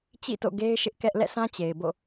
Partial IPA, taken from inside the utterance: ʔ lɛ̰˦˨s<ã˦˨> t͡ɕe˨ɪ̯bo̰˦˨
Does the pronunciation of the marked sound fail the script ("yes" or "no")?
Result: yes